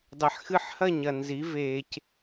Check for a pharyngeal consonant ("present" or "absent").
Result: present